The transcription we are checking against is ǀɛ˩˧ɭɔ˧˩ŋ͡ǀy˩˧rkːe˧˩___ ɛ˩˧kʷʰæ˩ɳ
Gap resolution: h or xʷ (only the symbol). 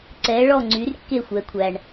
xʷ